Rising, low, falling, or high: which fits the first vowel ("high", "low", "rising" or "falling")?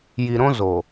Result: low